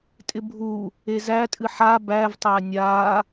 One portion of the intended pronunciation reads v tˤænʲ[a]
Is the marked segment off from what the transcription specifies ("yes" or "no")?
no